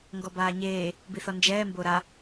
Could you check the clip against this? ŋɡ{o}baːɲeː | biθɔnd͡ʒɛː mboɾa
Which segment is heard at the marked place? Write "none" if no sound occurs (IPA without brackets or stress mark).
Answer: ɔ